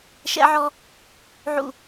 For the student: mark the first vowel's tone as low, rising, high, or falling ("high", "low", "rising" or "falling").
high